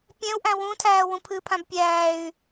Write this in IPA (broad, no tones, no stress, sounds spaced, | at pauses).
pʲ ɛ̃ u̯ ʔ æ̃ w ũ tʰ æː w ũ pʰ ɨ pʰ ã b pʲ æː y̯